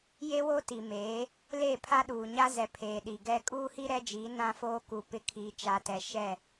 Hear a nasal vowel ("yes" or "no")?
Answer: yes